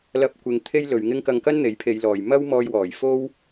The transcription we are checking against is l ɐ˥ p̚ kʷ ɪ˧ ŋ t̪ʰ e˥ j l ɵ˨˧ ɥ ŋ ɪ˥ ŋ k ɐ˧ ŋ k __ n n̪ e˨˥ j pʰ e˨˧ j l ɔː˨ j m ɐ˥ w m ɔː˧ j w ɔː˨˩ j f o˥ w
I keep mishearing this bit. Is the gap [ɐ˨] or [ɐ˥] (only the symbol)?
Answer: ɐ˥